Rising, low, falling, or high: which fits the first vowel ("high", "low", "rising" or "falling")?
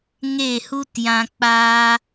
falling